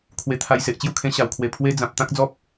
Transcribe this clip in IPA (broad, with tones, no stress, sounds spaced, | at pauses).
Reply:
kʰ w e˧ t̪ʰ a˧ j s e˨ ʔ t͡ɕ j u˥˧ kʰ ẽ˧ ɕ a˨˩ w kʰ w e˨˩ pʰ w e˦ d͡z ã˨ p̚ t̪ ã˦ k̚ d͡z ɔ˦ p̚